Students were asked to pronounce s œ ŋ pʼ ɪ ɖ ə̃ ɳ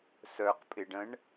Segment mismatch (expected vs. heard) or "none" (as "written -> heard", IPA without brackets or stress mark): ŋ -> q